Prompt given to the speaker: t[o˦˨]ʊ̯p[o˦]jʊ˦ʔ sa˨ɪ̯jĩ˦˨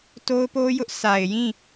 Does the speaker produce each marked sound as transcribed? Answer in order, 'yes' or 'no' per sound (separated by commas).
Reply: no, yes